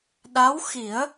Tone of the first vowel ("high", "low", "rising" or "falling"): rising